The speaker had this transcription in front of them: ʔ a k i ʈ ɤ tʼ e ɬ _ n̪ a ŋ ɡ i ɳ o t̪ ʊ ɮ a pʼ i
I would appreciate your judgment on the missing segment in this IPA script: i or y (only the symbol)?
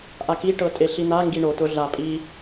i